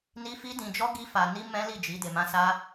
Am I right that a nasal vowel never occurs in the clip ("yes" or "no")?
no